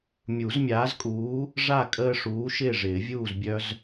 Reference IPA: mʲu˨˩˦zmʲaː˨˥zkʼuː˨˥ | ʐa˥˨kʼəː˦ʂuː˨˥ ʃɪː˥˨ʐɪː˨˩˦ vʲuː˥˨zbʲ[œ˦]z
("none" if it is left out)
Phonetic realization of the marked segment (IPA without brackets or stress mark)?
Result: œ˦